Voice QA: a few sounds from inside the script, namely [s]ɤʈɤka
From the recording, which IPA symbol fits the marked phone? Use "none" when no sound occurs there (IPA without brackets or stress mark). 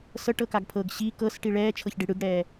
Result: s